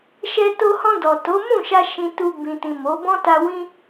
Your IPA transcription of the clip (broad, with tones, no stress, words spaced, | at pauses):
ʃɛ˧to˧hɔ̃˧ dɔ˨ to˨˦mũ˦˨ʃa˧ ʃĩ˧tu˧ bĩ˨tĩ˨ mo˨˦ bɔ̃˦ta˧ wĩ˧